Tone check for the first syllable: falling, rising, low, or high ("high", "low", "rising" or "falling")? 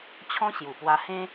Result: high